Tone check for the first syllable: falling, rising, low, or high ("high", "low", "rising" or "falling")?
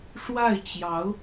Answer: falling